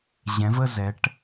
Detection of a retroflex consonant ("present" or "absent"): present